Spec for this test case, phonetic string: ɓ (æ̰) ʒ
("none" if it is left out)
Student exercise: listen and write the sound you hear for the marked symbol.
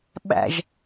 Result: æ̰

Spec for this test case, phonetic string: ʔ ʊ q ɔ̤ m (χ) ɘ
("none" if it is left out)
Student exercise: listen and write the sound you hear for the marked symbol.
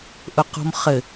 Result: χ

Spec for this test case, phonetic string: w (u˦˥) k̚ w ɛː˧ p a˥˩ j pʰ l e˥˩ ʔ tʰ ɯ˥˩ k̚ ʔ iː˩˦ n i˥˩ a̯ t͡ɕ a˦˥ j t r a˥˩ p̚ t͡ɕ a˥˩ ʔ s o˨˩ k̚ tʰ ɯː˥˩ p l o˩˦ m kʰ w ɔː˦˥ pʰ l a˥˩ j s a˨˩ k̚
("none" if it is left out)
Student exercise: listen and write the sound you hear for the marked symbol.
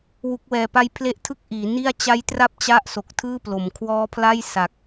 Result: u˦˥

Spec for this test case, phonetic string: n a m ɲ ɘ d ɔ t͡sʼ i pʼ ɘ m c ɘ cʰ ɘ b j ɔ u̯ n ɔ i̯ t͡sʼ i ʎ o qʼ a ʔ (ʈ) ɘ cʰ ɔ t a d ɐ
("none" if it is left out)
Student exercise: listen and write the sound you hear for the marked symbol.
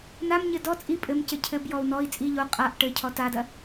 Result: ʈ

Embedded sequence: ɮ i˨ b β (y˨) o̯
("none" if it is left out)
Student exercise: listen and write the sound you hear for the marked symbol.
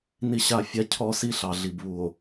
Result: u˨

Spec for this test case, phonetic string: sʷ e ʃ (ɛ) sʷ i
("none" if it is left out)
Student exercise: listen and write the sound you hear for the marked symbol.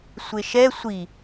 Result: ɛ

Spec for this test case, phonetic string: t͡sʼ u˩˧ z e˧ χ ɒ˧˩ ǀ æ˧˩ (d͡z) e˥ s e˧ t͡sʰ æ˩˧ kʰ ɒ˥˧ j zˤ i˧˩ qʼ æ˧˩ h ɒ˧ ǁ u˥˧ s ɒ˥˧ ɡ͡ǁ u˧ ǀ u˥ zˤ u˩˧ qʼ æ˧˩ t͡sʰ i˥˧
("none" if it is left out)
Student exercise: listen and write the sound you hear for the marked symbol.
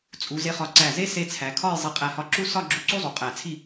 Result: z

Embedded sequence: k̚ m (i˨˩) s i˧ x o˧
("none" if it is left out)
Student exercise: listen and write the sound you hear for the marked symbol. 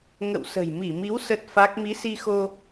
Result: i˨˦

